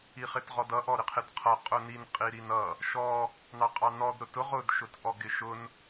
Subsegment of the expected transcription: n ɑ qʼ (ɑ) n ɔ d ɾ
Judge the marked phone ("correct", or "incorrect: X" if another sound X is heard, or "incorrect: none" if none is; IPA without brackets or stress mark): correct